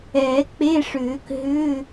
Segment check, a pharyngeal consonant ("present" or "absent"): absent